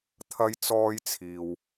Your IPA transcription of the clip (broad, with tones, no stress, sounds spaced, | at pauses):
t̪ʰ ɐ˧ j t͡s ɔː˧ j t͡sʰ iː˨ w